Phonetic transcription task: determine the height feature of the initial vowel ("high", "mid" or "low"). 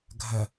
low